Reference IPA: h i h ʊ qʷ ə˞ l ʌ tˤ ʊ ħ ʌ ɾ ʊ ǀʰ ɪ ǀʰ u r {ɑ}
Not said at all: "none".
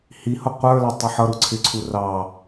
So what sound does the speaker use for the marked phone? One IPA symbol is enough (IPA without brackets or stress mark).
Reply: ɑ